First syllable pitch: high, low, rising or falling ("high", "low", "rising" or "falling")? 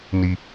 low